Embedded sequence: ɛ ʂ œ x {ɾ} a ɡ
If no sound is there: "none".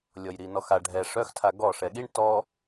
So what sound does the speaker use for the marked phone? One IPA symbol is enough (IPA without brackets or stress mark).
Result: tʰ